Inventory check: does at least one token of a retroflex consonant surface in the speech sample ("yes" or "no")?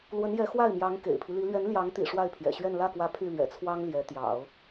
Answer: yes